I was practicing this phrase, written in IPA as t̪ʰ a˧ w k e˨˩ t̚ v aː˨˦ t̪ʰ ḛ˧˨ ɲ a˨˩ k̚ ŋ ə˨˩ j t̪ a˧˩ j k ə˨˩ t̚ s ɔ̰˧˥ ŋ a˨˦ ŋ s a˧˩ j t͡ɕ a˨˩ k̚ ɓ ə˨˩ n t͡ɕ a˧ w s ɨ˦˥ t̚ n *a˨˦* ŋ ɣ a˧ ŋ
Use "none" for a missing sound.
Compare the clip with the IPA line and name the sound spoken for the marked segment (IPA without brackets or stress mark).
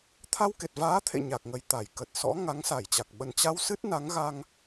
a˨˦